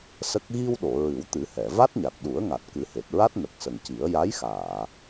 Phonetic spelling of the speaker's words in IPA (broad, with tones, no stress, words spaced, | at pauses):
sə˦˥k̚ ɣi˧wɗo˨˩˨ ɹɨ˨˩˦wt̪ɨ˨˩˦hɛ˨˩˨ va˦˥t̚ɲa˨˩t̚ɗu˨˩˦ə̯ ŋa˨˩t̚kɨ˨˩˦he˨˩t̚ɹa˦˥t̚ nə˨˩k̚ sə˨˩ŋci˨˩˦ə̯ ja˧˥jxaː˨˩˨